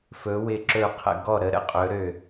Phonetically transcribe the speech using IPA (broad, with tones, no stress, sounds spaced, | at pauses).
f ɵ˩˧ w ɪ˧˩ ǁ ɵ˧˩ qʰ ə̰˧˩ ɡ ɔ˧˩ ɾ ə˩˧ ɾ ə̰˥ qʼ ɵ˩˧ ɾ ø˧˩